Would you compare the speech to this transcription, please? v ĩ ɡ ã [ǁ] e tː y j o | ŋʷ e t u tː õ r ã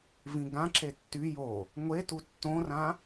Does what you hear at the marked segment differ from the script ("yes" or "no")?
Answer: no